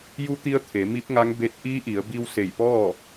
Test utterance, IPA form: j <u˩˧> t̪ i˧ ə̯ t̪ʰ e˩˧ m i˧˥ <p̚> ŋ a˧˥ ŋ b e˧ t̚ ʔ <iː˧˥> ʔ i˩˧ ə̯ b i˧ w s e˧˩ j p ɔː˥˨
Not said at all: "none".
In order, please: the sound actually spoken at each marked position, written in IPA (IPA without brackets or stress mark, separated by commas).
u˧˥, p̚, iː˧˥